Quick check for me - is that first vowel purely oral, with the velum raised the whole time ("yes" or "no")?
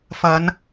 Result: yes